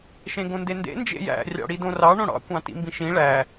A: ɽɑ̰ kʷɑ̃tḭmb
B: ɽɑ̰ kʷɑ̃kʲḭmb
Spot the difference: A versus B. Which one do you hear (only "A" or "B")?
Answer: A